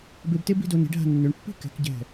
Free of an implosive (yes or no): yes